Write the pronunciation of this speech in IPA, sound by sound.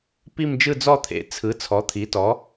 p i˥˧ m d͡ʒ ɯ˥˧ d͡z ɔ˥˧ t̪ʰ ḛ˩˥ t͡sʰ ɯ˩˥ t͡sʰ ɔ˩˥ t̪ʰ i˩˥ t ɔ˩˥

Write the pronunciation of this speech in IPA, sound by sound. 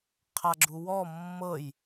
qʰ a ɡ͡ǁ u w ɔ mː ɤ j

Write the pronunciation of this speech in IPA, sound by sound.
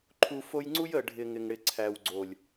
ǃʰ u˨ f o˧ j ŋ͡ǀ u˦ j ə˨ ɖʱ ɪ˨ ŋ ɪ˨ ŋ ɽ ɪ˨ ǀʰ æ˨ w ɡ͡ǀ o˨ lʲ

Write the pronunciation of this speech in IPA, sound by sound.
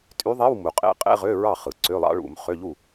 tʼ y˧˥ ðˤ e˧˥˧ w m u˩ qʼ ḛ˧˥ qʼ ḛ˧˥˧ ʁ ø˧˥˧ ɹ ɑ˥˩ χ ɯ˩ ǀ ø˧˥˧ lˠ ɑ̰˧˥ ɭ ṵ˨˩˦ m χ ø˧˥˧ ʎ u˥˩

